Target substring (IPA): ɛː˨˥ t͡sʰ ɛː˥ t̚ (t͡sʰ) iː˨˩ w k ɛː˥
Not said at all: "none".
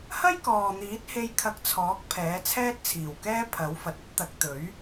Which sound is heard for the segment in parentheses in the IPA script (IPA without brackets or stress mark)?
t͡sʰ